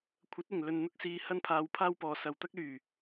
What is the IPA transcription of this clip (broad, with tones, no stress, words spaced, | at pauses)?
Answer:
kʷʰɐ˨˥t̚ɪ˨˩ŋ lɵ˨nn̪ʊ˥k̚siː˧ hɐ˥npʰaː˧wpʰaː˥wpɔː˨ sɐ˨wt̪ɐ˥k̚lyː˨˩